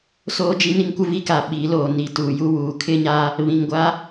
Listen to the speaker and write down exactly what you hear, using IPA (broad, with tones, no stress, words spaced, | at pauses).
soː˦d͡ʒi˦ni˦ŋkʷɪ˦ vi˦ka˨ ɓi˨˦ loː˨ ni˨tuː˨ju˦wuː˨ kʰɪ˦ɲa˦ | βĩ˨ŋɡʷa˦